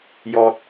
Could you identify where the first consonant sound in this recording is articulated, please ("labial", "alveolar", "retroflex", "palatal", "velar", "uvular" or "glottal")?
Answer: palatal